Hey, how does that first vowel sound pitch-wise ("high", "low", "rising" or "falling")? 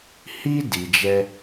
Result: high